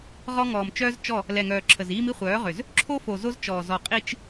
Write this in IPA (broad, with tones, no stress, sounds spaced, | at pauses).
ʁ ɔ˦ ŋ ɔː˨ m t͡ʃ œː˦ z t͡ʃ ɔ˦˨ | l ɛ˨ ŋ œː˨ ǁʰ ə˨ z iː˦ m i˦ χʷ œː˨˦ ʁ ø˨ z | ǁʰ o˦ f o˨ z o˦ z t͡ʃ ɔː˨ z ɔ˨ qʼ i˦ t͡ʃ